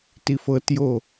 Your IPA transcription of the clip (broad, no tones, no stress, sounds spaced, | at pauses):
t i f ɤ t j o